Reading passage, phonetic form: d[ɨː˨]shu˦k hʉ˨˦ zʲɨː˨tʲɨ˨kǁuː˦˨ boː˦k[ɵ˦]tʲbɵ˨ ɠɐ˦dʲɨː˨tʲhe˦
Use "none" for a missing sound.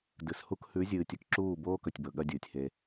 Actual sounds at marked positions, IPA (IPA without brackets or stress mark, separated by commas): ɨ˨, ɵ˨